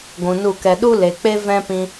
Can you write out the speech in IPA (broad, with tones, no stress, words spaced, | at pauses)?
ɡʷũ˨nu˦˨kɛ˧ ɗu˦le˨k͡pe˦ vɛ̃˦pĩ˧